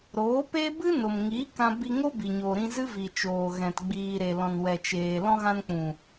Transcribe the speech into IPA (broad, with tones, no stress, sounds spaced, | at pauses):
ɾ oː˨˦ p e˦ b ɨ˦ n o˨ m ŋ i˨˦ k ã˧ b i˧ ŋ o˦ b i˨ ɲ o˨ ɾ ĩ˧ z ɨ˦ v i˨ t͡ʃ oː˨ ɣ ɛ̃˨ t ɡ͡b iː˨ ɾ e˨ l ɔ̃˨ n w ɛ˨ t͡ʃ eː˨ l ɔ̃˧ ɣ ã˧ n k͡p ũ˨